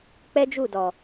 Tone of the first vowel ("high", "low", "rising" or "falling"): high